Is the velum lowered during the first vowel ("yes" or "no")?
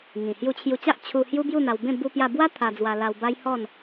yes